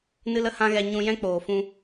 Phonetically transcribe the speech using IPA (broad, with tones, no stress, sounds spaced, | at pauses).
n ɨ˦ l ə˦ h ã˦ ɣ ɛ˧ ɲ ũ˧ j ɛ̃˦ k͡p oː˨ f ũ˧